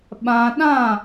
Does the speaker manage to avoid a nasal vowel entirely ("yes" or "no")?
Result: no